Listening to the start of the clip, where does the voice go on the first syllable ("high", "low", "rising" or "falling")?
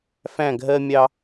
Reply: falling